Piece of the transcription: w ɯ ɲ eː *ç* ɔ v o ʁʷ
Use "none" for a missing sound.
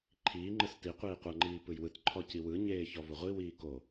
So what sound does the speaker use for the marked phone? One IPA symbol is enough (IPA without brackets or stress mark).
ç